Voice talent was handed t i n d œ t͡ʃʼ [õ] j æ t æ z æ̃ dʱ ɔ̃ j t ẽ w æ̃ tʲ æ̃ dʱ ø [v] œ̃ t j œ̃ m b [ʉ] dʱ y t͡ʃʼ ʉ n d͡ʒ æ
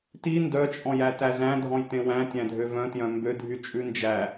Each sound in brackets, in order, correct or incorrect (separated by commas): incorrect, correct, incorrect